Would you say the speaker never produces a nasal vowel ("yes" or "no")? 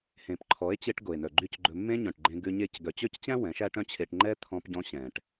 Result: no